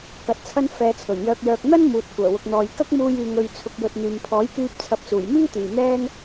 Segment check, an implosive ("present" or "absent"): absent